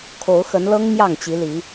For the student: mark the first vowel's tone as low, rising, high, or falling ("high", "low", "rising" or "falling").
rising